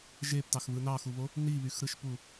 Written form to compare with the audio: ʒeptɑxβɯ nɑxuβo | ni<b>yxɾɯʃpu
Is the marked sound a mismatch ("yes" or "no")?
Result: yes